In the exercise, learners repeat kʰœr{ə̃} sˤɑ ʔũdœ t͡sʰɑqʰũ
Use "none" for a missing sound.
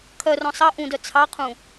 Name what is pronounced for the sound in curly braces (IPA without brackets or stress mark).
ɔ̃